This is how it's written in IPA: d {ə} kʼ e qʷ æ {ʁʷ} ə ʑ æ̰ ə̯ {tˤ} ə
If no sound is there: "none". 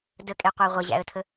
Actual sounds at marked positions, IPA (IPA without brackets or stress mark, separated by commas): ə, ʁʷ, tʰ